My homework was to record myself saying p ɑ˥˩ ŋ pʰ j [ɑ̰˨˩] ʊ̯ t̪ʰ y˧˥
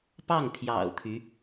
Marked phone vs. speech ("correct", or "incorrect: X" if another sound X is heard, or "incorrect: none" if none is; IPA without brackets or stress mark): correct